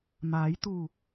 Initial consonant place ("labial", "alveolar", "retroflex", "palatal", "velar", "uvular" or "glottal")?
labial